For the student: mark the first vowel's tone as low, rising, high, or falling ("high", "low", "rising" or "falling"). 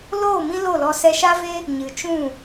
falling